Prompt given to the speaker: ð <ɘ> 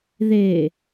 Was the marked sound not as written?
yes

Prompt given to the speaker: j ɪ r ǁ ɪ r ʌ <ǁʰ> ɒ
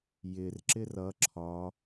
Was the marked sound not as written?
no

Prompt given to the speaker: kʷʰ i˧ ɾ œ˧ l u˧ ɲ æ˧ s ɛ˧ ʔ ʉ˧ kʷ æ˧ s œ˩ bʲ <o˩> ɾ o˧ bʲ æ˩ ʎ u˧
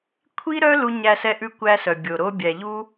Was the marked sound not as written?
no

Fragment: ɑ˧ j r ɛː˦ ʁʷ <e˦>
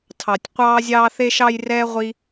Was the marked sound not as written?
yes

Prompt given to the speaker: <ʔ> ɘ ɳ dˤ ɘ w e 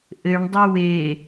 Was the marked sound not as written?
no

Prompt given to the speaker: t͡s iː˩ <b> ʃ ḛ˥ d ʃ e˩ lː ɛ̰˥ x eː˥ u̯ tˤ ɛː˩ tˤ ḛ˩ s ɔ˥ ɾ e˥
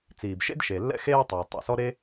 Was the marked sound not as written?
no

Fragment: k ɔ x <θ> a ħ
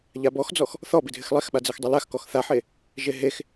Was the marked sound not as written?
no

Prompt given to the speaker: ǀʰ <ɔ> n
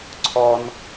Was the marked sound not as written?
no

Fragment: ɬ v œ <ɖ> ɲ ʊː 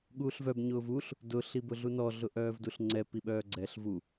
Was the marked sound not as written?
yes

